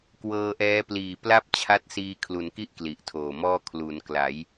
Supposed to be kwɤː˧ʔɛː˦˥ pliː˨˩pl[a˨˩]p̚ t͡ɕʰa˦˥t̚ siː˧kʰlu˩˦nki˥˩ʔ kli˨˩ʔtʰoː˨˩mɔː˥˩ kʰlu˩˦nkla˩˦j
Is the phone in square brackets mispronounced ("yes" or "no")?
yes